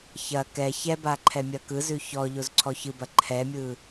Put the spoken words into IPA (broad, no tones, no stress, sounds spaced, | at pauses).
ç ɐ k ɛ ç ɛ b a ǃʰ ɛ mʲ ɐ k ɯ z ʉ ç ɔ ʎ o z ǀʰ ɔ ç ɯ b ɐ ǃʰ ɛ mʲ ɯ